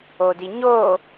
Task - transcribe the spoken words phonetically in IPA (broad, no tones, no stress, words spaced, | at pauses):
odiɲoː